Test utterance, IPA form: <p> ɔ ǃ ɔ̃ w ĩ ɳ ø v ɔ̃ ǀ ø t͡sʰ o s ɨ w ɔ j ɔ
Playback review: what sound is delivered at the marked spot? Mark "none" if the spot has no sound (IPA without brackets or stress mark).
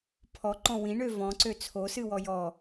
pʰ